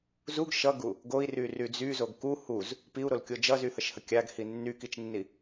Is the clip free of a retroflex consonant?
yes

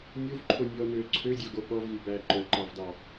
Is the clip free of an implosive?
no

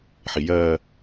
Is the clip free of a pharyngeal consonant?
no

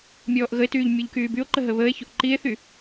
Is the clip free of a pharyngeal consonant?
yes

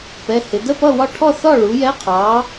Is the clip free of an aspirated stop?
no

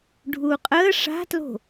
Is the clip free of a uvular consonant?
no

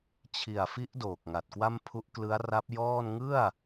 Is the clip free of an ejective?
yes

